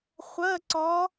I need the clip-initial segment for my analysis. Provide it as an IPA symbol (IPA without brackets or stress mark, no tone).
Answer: χʷ